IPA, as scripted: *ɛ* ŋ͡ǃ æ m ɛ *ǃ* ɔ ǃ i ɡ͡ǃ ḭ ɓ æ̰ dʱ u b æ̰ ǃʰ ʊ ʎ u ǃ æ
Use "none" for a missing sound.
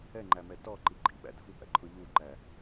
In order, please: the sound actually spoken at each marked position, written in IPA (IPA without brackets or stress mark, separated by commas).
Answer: ɛ, t